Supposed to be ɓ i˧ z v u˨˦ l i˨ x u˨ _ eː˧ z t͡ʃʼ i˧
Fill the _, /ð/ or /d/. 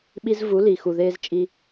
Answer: ð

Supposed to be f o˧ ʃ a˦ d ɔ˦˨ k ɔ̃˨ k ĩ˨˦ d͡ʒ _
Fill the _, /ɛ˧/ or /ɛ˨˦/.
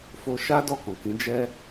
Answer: ɛ˧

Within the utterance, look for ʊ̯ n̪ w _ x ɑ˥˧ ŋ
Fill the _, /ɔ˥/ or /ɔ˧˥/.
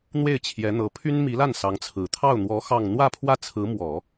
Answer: ɔ˧˥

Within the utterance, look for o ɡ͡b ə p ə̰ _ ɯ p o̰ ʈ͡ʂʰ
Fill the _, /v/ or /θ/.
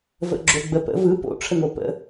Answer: v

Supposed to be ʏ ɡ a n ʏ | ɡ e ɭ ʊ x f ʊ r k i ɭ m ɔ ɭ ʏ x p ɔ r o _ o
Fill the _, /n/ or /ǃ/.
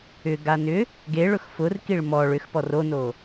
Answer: n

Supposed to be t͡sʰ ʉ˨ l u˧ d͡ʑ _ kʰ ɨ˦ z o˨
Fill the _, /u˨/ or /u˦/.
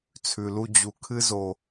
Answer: u˨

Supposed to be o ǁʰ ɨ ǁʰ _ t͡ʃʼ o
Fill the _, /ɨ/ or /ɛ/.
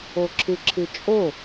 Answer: ɨ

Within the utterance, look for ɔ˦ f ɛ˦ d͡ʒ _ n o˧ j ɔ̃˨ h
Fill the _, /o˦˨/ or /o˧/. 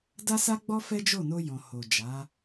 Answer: o˦˨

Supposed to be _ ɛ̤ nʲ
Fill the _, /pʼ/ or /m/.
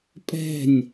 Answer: pʼ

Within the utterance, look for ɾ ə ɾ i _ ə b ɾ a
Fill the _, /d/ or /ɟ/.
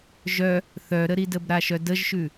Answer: d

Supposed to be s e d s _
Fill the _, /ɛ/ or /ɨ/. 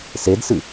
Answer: ɨ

